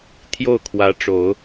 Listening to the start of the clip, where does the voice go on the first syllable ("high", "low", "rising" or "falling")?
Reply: falling